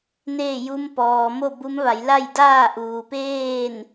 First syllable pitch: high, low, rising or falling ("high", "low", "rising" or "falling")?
falling